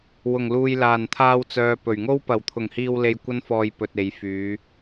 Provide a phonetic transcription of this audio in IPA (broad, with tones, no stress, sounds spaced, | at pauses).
w ʊ˨˩ ŋ l uː˨ j l aː˨˩ n t̪ʰ aː˧ w t͡s œː˨ p ɵ˨˩ ɥ ŋ o˥ w p ɐ˨˩ w t̪ʰ ʊ˨˩ ŋ h iː˨ w l e˨ j kʷ ɐ˥ n f ɔː˧ j p ɵ˨ t̚ e˨˧ j f yː˨˧